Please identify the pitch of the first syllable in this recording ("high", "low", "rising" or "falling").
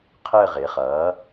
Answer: falling